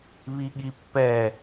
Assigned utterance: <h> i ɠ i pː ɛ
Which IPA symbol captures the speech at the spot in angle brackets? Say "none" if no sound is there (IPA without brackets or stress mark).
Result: β